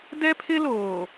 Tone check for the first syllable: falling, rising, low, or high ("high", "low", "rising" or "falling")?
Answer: high